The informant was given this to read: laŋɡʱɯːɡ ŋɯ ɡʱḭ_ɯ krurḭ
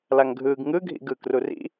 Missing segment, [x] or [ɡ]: ɡ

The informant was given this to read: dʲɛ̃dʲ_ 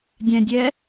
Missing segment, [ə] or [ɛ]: ɛ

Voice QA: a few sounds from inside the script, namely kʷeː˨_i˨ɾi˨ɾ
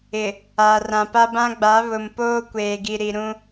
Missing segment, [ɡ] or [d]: ɡ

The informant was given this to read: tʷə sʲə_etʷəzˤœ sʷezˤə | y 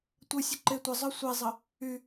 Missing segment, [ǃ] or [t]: ǃ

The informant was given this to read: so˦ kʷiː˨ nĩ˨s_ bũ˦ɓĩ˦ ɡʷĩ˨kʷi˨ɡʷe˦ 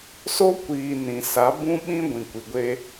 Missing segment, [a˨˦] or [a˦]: a˨˦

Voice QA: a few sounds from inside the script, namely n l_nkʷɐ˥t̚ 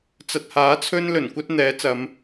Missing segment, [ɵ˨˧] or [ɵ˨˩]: ɵ˨˩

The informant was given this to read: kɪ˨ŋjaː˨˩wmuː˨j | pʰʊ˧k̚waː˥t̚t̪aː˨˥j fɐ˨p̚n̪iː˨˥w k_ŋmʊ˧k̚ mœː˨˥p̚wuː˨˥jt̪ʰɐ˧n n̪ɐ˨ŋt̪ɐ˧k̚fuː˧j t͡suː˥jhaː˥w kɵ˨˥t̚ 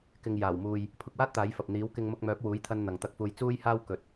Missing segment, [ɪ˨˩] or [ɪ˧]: ɪ˧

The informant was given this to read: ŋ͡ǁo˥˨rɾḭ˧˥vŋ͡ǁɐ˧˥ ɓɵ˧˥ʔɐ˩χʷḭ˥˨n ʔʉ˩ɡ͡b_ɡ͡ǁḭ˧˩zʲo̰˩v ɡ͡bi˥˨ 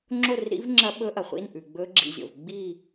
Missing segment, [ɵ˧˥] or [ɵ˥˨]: ɵ˧˥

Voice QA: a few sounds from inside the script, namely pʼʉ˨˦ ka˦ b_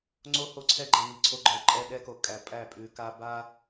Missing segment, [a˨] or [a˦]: a˦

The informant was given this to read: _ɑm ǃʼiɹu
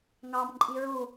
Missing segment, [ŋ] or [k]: ŋ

